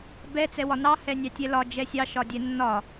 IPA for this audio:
bɛ t͡sɛwɒnɑ hɛnʲɑtʲɛlɒ d͡ʒɛsʲɑ ʃɒdʲɛnːɒ

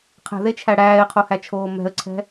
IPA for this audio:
qʰɛ̤ðet͡ʃʰæ ɽæːɪ̯qʰohæt͡ʃʰoː mɛ̤ə̯ǀʰɛ̤

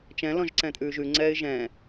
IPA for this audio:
t͡ʃɛ̃ lɔ̃ʒǀɛ̃tʼʉːʒʉ ŋ͡ǀɛːɪ̯ʒɛ̃

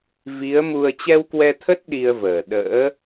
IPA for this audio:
vi˨˦ə̯ mu˧ə̯ t͡ɕɛ˧wkwɛ˧t̪ʰə˦˥t̚ ɗi˧ə̯vəː˨˩ ɗə̰ː˧˥

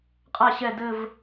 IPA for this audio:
qʼa ɕɛ dɘv

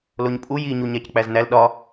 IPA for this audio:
loɲpʼu jiɲu ɲæck͡pæznæl ɗɒ

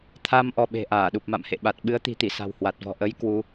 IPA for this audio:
t̪ʰa˧m ʔɔ˧ɓe̤˨˩ ʔaː˧˩ɗu˨˩p̚ma̰˧˨m hḛ˧˨ɓa˨˩t̚ ɓɨ˨˦ə̯t̪i̤˨˩t̪i˧˩ sa̤˨˩whwa˨˩t̚vɔ̤˨˩ ʔə˨˦j kwu˨˦

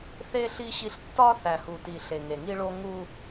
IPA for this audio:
θe˦ ɬi˦ɕi˦ɬ tːɒ˦θæ˨hu˨ti˨ ɬe˨ŋe˨ŋi˦ ɭo˦ŋu˦

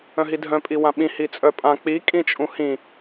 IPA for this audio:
œ̃ɦidʱœ̃pʼi wãɓĩ hit͡sʼœpʼã k͡pikʼĩt͡ʃʼũ hĩ

